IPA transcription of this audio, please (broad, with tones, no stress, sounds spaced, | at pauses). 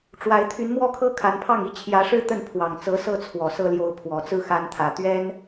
ʈ͡ʂ w a˧˥ ɪ̯ t̪ʰ y˧˥ n m w ɔ˥˩ kʰ ɤ˥ kʰ a˧˥ n pʰ ɑ˥˩ ŋ i˥ t͡ɕʰ j ä˧˥ ʂ ɻ̩˥ t̪ ə˥˩ n pʰ w ɑ˨˩ ŋ t͡s ɤ˧˥ s ɤ˥˩ t͡sʰ w ɔ˨˩ s ɤ˥ l j o˧˥ ʊ̯ pʰ w ɔ˨˩ t͡s ɹ̩˥˩ x a˧˥ n t̪ʰ ä˨˩ t̪ ɥ ɛ˥ n